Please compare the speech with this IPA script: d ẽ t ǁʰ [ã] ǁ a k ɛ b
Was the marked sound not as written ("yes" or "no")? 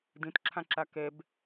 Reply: no